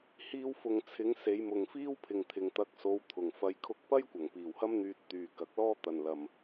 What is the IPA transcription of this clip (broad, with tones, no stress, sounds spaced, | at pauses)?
h iː˧ w f ʊ˨ ŋ t͡sʰ ɪ˨˧ ŋ s e˨˧ j m ʊ˨ ŋ f iː˥ w pʰ ɪ˨ ŋ t̪ʰ ɪ˨ ŋ t̪ ɐ˨˥ k̚ s o˨˧ w t̪ʰ ʊ˨˩ ŋ f ɐ˧ j kʰ ʊ˧ k̚ p ɐ˥ j kʷ ɐ˨˩ ŋ p iː˨˩ w h ɐ˥ m n̪ yː˧ t̚ t̪ yː˨ k ɐ˨˥ k̚ l ɔː˥ t̪ ɐ˨ n l ɐ˨ m